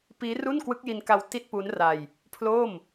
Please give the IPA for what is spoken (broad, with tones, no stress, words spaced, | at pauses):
piː˦˥ ru˥˩nkwɯ˦˥k̚ji˧nka˧w ti˥˩t̚pu˦˥n ra˧j | pʰloː˥˩m